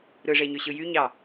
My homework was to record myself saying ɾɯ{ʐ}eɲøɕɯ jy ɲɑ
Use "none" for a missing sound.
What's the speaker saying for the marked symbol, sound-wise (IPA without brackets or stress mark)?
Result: ʐ